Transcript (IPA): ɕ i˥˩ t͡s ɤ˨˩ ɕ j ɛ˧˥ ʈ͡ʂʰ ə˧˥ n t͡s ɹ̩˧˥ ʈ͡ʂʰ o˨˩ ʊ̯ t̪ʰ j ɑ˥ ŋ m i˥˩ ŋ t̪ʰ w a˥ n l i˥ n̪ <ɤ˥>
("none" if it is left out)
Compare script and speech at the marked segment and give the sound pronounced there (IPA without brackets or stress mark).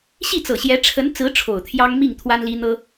ɤ˥